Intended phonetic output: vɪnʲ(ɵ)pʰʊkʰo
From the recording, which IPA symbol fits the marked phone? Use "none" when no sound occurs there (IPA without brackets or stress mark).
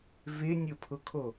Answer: ʊ